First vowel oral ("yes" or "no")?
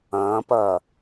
no